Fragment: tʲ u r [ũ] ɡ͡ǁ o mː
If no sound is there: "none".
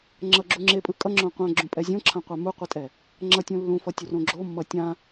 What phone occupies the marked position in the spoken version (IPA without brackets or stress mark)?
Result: õ